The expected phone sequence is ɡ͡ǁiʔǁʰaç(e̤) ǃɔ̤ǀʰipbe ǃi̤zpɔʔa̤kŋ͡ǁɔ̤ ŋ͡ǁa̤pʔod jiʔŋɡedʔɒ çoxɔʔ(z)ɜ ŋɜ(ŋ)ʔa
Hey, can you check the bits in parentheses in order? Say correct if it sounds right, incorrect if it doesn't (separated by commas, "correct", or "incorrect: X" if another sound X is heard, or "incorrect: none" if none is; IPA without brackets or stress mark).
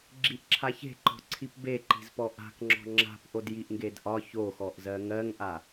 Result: correct, correct, correct